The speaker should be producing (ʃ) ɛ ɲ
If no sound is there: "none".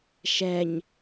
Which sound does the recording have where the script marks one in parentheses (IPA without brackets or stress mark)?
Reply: ʃ